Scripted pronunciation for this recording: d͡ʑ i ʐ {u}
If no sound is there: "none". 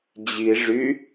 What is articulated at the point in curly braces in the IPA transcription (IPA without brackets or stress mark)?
y